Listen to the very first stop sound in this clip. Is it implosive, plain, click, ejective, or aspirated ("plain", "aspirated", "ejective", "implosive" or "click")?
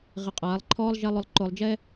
ejective